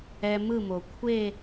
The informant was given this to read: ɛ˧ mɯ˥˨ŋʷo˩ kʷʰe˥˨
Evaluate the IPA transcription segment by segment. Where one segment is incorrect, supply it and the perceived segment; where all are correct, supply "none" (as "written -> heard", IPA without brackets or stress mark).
ŋʷ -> m